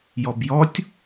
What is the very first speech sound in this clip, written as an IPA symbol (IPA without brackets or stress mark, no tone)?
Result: j